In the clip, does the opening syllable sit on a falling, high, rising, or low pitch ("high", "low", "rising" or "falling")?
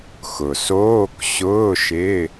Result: low